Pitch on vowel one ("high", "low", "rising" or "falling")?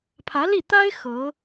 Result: rising